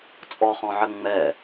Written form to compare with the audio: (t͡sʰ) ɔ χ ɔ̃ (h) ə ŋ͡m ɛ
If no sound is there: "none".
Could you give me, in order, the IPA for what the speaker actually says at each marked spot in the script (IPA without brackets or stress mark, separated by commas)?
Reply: t͡sʼ, ʕ